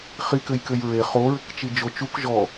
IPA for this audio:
χ i k ɘ j k ɘ j ɹ e χ o ɹ ɘ k t͡ʃ i d͡ʒ o t͡ʃ u k ʒ ɔ

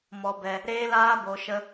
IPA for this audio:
m ɔ˧ b ɛ˧ | ɾ eː˦ l aː˦ b o˧ ʃ ə˦

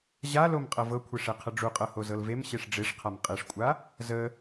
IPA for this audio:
ʑ a l o m qʼ ɤ v ɤ kʷʰ e ʂ e qʰ ə ɖ͡ʐ u qʼ ɤ h o z ɤ l v e m ɕ e ʂ ɖ͡ʐ e ʂ qʰ a m qʼ e ʂ kʷʼ a | z ə

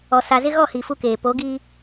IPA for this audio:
ɔ˨ s a˨ z ɪ˦ ɣ ɔ˦˨ h i˨ f u˦ k eː˨ p o˨˦ ɡ i˦

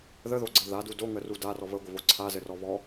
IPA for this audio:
ð ə ð o ɡ͡ǀ ɘ ð a d u d o ŋ ə r u d a r ɔ β ə ɡʷ ə β o ǀʰ a z ɘ r ɔ β ɔ

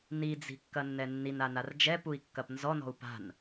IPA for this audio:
n i d͡z i̤ kː ɐ nː ɛ nː i n a n a r d͡ʒ ɛ p u i̯ kː ɐ p n z ɔ n ɔ̤ u̯ p a̤ n

